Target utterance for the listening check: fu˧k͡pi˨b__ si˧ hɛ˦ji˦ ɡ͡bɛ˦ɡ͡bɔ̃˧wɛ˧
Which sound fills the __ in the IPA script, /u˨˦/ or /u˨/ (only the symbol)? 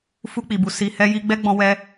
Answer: u˨